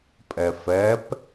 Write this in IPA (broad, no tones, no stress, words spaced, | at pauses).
pʼɛfɛp